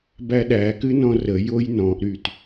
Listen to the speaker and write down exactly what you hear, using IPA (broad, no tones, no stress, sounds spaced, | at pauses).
b æ ɗ æ k ɨ n ɔ̃ r ə j o j n ɔ̃ ʔ ɾ y t